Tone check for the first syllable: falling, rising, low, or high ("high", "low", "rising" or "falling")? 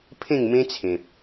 falling